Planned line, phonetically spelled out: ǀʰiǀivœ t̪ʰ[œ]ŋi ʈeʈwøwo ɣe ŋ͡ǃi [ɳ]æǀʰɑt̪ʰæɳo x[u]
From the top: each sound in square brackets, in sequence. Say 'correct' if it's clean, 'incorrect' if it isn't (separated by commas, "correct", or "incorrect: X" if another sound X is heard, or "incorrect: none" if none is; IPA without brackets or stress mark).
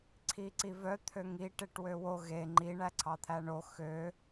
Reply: incorrect: ø, correct, incorrect: ø